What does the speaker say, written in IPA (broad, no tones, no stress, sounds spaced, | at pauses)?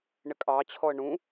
ɳ ɪ kʼ ɑ t͡ɕʰ ɔ ə̯ ɳ ũ